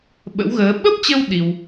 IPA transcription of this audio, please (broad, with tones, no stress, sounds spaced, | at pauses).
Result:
ɓ ə̰˧˥ w ɣ əː˨˦ ɓ ə˦˥ p̚ t͡ɕ ə˧ w ɗ i˧ w